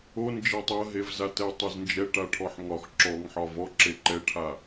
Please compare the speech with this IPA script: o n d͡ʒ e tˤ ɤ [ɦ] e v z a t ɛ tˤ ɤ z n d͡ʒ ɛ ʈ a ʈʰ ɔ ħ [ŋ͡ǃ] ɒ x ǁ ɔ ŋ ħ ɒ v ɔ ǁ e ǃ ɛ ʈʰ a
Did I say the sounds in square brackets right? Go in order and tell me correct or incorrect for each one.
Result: correct, incorrect

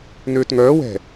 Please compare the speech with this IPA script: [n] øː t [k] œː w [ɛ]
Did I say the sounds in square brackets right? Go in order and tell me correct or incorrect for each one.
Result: correct, incorrect, incorrect

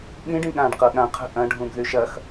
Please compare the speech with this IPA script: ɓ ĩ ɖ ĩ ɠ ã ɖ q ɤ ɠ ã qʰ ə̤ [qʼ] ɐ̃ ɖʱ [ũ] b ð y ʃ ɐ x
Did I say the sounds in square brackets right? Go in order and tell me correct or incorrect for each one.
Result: incorrect, correct

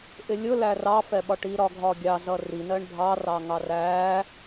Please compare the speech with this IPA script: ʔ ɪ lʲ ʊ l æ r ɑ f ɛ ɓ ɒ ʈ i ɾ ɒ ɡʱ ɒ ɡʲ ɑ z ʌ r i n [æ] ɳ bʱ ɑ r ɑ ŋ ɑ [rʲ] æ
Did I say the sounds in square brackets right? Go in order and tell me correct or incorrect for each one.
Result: incorrect, incorrect

